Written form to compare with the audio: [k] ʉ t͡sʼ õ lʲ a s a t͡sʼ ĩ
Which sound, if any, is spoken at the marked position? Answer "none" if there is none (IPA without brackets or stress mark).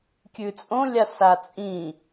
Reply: kʲ